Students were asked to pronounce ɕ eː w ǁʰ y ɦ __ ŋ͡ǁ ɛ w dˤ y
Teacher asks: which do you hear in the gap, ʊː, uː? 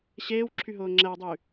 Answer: ʊː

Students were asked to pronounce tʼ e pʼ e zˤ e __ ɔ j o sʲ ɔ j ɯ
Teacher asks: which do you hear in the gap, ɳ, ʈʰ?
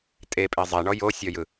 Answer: ɳ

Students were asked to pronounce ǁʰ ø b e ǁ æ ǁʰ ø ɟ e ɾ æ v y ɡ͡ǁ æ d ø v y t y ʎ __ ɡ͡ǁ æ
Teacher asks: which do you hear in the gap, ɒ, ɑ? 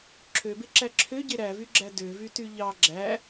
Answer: ɑ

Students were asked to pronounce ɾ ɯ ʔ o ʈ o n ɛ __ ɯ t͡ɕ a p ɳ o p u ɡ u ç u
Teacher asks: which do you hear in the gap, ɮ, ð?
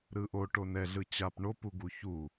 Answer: ɮ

